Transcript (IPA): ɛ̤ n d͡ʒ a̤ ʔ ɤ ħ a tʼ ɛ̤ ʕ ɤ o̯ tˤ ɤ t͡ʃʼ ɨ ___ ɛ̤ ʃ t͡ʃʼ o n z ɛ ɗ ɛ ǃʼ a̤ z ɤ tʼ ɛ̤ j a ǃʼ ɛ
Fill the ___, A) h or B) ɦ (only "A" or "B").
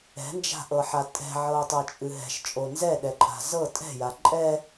B